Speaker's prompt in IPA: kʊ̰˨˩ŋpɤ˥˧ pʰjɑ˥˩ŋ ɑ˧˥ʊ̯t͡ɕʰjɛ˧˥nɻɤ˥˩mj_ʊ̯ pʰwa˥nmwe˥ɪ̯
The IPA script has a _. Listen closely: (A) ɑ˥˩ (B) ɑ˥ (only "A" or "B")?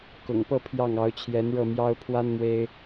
B